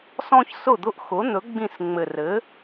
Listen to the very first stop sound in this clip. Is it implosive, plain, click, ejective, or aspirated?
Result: plain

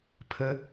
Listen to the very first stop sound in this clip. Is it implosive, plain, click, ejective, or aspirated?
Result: aspirated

